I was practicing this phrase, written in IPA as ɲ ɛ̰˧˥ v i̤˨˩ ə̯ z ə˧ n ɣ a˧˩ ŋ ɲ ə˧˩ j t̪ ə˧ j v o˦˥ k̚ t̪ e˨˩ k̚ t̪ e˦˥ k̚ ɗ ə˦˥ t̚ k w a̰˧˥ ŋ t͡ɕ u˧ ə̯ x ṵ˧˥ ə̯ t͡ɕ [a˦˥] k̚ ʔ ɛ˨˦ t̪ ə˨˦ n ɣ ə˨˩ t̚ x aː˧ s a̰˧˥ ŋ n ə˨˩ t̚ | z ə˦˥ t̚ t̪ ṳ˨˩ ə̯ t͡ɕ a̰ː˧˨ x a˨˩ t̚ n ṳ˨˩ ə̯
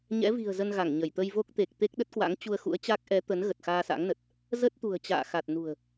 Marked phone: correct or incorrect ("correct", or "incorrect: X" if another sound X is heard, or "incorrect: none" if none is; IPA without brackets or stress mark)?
correct